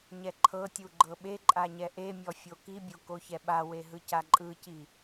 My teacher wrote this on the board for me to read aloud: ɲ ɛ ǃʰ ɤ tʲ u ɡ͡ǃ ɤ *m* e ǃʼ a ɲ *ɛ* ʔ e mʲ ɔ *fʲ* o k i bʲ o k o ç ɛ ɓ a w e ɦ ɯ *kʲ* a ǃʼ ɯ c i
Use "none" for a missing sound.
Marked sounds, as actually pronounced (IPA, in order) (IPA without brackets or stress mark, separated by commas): ɓ, ɛ, fʲ, c